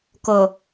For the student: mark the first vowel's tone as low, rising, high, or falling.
low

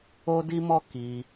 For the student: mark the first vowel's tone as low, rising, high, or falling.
high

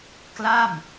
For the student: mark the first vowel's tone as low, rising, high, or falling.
falling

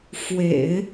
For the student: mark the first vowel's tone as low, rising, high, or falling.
low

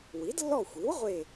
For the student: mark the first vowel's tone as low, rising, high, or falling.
rising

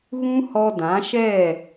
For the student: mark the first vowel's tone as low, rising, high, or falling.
high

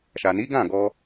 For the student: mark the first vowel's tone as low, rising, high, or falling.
low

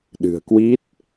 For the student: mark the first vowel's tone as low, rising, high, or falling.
low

